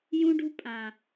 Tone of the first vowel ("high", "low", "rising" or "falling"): high